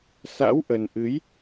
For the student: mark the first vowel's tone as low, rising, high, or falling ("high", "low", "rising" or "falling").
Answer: rising